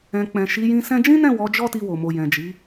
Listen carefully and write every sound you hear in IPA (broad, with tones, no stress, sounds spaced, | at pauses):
ɛ̃˨ k͡p ɛ̃˨ ʃ i˨˦ j ĩ˧ s ɛ̃˧ d͡ʒ ĩ˦ n ɛ̃˦˨ w ɔ˨˦ d͡ʒ ɔ˦ t i˧ w o˨ m o˨ j ɛ̃˨ d͡ʒ i˨˦